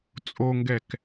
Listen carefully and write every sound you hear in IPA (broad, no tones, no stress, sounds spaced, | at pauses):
t͡sʼ o ŋ ɡ ɛ k